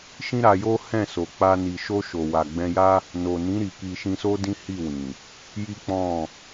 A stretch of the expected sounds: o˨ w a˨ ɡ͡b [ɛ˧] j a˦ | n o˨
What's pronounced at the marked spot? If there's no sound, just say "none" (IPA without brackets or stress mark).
ɛ̃˧